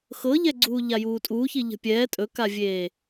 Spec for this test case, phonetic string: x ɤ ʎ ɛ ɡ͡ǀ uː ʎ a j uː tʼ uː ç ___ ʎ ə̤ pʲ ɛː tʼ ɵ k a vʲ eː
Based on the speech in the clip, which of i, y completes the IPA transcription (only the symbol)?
i